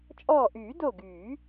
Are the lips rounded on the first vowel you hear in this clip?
yes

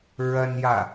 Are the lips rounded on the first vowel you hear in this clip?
no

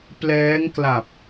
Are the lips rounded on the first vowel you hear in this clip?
no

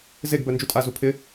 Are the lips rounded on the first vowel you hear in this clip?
no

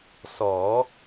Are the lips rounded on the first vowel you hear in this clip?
yes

